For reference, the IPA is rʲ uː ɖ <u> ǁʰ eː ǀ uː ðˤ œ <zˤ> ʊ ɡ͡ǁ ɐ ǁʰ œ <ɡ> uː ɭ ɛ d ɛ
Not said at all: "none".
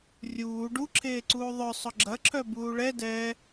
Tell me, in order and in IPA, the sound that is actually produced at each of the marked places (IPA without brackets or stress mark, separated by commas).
u, sˤ, b